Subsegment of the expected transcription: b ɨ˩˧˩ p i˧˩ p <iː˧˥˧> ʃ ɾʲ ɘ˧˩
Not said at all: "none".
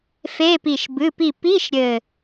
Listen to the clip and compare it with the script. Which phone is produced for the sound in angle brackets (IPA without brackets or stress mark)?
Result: i˧˥˧